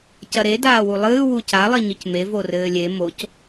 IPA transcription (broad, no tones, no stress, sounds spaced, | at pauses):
c ɐ ɾ e d aː w u lˠ ɨː w u c a lˠ i ɲ ɨ c m e v o r ɘː lʲ e m o c